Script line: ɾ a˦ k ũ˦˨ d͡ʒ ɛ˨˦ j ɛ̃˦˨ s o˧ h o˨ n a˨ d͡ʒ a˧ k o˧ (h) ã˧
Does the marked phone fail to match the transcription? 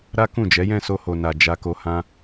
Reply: no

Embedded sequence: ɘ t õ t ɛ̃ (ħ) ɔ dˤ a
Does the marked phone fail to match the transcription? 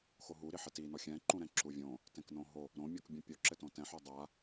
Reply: no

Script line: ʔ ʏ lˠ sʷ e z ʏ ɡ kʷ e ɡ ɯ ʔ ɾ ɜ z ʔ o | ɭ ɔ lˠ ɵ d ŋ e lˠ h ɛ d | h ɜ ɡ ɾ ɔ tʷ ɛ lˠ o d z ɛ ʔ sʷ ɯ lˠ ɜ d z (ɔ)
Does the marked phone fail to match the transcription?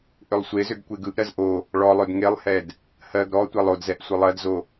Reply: yes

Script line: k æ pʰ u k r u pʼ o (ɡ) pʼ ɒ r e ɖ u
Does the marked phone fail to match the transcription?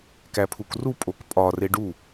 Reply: yes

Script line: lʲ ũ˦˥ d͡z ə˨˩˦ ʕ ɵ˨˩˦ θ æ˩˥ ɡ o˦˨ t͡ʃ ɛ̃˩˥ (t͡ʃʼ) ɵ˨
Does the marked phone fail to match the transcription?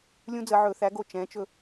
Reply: yes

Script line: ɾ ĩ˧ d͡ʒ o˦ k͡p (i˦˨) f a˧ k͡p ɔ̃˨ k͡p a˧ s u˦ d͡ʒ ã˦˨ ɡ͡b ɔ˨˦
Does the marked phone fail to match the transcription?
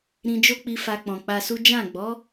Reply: yes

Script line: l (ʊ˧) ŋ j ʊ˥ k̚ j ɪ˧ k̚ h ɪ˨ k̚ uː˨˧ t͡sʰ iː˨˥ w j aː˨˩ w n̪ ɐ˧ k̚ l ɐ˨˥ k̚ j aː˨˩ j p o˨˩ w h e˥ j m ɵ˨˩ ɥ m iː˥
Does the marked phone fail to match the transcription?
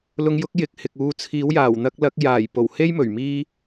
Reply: no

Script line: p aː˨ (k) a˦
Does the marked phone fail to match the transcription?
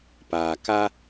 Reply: no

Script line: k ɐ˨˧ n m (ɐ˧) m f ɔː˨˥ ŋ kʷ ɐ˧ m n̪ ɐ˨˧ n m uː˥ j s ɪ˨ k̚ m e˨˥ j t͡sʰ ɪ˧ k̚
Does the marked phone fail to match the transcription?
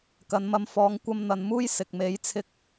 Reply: no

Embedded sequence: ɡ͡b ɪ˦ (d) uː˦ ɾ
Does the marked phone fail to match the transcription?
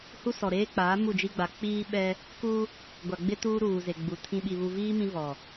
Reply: yes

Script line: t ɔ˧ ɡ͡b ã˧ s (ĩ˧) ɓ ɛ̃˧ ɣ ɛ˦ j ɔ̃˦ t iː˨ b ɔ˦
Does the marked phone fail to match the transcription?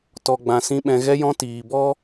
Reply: yes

